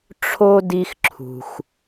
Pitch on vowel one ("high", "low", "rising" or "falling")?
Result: high